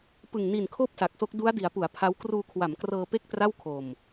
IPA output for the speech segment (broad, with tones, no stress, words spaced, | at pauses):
pɯ˨˩ŋni˨˩nkʰoː˦˥p̚ sa˨˩k̚so˦˥k̚ du˦˥a̯di˩˦a̯ pu˩˦a̯ pʰa˦˥w kruː˧kʰwa˩˦mkrɤː˧ pe˥˩k̚tra˥˩wkʰo˧m